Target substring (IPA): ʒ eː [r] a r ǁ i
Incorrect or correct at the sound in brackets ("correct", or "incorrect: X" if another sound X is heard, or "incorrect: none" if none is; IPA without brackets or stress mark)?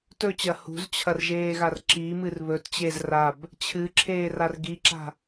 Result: incorrect: ɣ